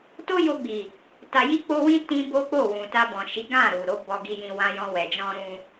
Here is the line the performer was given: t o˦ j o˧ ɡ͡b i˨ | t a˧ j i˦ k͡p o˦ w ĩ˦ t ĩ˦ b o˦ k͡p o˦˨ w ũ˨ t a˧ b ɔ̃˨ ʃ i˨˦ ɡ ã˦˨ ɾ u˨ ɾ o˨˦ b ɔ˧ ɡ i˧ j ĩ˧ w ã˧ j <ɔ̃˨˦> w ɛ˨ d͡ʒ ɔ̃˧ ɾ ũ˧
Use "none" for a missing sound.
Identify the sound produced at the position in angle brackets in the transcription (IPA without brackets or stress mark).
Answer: ɔ̃˧